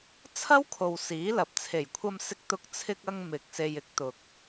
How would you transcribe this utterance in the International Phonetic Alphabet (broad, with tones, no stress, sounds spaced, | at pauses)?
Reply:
t͡sʰ ɐ˥ w kʰ o˨ w s iː˨˥ l ɐ˨ p̚ t͡sʰ e˨˩ j kʷʰ ɐ˧ m s ɪ˧ k̚ t̪ ʊ˧ k̚ t͡sʰ ɪ˧ k̚ ɐ˧ ŋ m ɪ˨ k̚ s e˨ j ɪ˨˥ k̚ t̪ ʊ˨ k̚